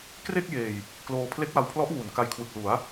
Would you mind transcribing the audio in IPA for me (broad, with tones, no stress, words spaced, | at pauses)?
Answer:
kre˥˩k̚jeː˨˩j | kloː˧pʰle˦˥k̚wa˧wpʰlɔ˦˥ʔ wu˩˦n ka˧jkʰwɯ˨˩k̚lu˩˦a̯